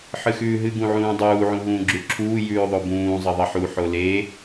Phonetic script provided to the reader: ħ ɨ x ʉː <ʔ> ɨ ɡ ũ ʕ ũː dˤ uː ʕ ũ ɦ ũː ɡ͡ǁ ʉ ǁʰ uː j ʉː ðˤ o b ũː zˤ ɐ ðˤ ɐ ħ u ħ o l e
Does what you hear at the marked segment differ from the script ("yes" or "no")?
yes